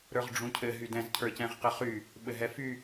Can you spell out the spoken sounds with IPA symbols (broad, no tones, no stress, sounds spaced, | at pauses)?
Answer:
ɾ ə˞ ʁ ɖ͡ʐ ũ cʰ ɘ ɦ y d ɛ̃ z cʰ ə˞ c ɛ̃ ʁ q ɘ χ y | ɓ ɘ ɦ ɛ f y